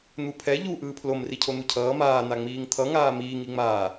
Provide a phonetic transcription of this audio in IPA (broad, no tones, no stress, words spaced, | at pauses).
n̪upʰɛ ʎu ʔɯːpʰlom ricʰon̪ucʰʌː maː n̪aŋ͡miːŋt̪ʰʌ ŋaːmiːŋ iŋ͡maː